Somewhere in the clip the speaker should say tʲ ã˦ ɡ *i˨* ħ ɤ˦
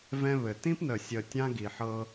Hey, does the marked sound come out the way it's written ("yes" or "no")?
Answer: yes